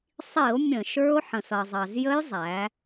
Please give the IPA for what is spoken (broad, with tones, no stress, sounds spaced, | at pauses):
sˤ i˧˩˧ o̯ mʲ ə̃˧˩˧ ʃ ə˞˦˥ o̯ ħ ə̃˩ s ʌ˩ zˤ ɑ˩ z j ə˦˥ j zˤ æ˩˧